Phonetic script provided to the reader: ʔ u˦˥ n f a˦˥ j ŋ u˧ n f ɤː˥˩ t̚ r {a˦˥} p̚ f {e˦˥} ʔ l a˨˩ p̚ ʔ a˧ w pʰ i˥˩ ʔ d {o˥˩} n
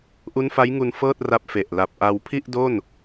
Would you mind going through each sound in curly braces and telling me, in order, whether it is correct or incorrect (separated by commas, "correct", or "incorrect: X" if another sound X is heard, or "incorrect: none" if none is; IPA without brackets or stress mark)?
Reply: correct, incorrect: e˨˩, correct